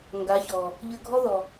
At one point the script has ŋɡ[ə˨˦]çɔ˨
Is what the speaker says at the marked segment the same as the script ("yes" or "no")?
no